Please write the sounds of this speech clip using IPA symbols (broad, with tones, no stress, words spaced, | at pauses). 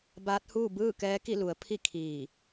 baː˧˥t̚huː˥˨ bɯː˥˨kɛː˧˥ki˥˨ lu˩˧ə̯pʰi˥˨kʰiː˧˩